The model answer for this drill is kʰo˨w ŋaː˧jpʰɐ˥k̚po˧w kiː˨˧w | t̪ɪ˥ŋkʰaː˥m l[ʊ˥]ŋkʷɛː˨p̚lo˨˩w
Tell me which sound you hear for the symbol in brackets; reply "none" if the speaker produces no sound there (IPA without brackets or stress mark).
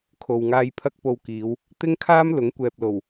ʊ˨˥